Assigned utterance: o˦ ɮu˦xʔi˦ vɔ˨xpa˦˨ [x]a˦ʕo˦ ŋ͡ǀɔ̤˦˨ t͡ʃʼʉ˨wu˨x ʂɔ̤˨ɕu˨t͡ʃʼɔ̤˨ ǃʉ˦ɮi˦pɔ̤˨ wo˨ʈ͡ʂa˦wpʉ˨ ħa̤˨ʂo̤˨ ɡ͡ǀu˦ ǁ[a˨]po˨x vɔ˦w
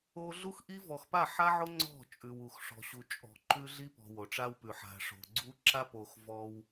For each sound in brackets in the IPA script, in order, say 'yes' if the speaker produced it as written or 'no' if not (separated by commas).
no, no